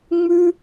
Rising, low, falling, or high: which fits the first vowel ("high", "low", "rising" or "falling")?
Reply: high